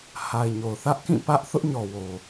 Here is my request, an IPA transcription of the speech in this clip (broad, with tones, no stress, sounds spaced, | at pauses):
h a˨ ɪ̯ ɲ o˨ ʊ̯ θ ä˦ ʔ k ĩ˦˨ p ä˦ ʔ θ ʊ˦ ʔ ɲ ɔ˨ w o˨